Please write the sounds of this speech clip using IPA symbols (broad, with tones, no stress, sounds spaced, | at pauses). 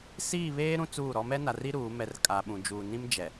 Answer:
s iː˦˨ β eː˦ ɾ ũ˦ t͡s uː˦˨ ɾ ɔ˦ m ɛ˦ n a˨ r i˦ ɾ uː˨˦ m ɛ˨ r kʼ a˨ ɓ ũ˨ d͡ʒ uː˨ n ĩ˦ m d͡ʒ ɛ˨